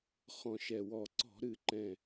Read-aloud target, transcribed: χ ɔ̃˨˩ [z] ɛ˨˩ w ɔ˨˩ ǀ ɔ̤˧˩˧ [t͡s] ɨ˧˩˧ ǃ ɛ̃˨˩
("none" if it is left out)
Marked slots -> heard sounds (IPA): ʃ, ɾ

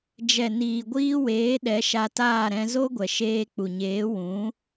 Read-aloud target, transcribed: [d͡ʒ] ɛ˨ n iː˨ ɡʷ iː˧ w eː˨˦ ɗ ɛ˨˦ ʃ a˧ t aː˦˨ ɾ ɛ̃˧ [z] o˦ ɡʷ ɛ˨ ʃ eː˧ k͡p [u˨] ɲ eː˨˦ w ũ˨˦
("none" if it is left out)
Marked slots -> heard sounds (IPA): d͡ʒ, z, u˨

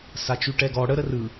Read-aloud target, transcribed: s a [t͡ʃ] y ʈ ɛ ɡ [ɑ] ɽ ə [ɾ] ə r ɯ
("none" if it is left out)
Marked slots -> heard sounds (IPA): t͡ʃ, ɔ, ɾ

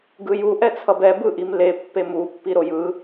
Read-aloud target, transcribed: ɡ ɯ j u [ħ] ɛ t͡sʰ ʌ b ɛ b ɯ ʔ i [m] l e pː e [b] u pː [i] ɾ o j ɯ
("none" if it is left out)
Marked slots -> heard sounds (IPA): ʔ, m, m, i

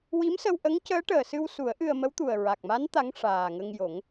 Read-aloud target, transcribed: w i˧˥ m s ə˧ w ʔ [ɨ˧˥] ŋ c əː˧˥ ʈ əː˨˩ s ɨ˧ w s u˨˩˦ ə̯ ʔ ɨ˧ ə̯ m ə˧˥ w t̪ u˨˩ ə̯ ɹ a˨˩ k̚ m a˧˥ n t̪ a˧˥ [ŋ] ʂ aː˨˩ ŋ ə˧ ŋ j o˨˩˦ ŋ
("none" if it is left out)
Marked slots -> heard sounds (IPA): ə˧˥, ŋ

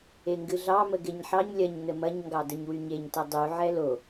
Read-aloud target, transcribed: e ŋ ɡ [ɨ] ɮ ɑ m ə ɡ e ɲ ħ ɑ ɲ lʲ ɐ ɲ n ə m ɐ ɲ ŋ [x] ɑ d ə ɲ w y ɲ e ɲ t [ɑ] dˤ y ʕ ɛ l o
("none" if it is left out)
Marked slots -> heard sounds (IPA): ɨ, ɡ, ɐ

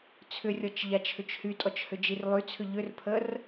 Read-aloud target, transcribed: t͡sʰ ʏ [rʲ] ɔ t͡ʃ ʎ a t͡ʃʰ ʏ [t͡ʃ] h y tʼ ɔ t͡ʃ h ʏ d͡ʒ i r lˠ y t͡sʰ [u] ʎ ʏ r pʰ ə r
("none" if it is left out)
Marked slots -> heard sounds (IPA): rʲ, t͡ʃ, ʏ

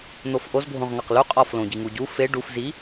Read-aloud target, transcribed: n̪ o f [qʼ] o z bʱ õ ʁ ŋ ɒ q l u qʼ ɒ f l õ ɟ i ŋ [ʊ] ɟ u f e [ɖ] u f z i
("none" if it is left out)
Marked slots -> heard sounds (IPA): ʔ, u, ɖ

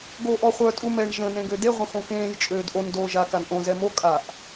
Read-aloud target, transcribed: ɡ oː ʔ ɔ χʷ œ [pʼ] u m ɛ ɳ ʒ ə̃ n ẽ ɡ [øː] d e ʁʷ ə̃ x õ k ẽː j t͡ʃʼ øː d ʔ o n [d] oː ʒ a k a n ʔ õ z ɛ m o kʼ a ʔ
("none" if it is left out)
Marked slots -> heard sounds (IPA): tʼ, ø, d

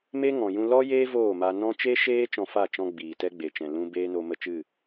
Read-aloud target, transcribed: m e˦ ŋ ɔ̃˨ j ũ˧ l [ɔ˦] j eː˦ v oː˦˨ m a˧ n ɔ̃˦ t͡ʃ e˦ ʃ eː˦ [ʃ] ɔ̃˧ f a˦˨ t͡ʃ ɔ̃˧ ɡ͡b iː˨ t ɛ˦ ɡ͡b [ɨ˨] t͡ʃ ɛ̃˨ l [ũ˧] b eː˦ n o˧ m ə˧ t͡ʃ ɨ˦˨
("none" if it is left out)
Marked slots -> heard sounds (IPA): ɔ˦, t͡ʃ, e˨, ũ˧

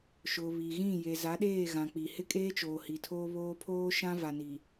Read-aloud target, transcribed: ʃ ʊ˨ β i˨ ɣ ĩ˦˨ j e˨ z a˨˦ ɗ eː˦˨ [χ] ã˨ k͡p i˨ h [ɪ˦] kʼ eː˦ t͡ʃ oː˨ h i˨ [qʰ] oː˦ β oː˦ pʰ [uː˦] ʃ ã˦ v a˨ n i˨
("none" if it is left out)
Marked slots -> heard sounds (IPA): ɣ, ɪ˦, tʰ, oː˦

